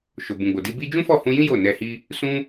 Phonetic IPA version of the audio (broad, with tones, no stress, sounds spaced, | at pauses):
ʃ o˨ b ũ˨ ɡ͡b o˨ d i˧ b i˦ d͡ʒ ũ˦ f ɔ˦˨ h ũ˧ j ĩ˦ j o˦˨ n ɛ˧ h i˦ | s ũ˦